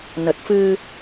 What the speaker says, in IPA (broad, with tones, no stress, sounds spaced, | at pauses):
n ə˨˩ t̚ f ɨ˧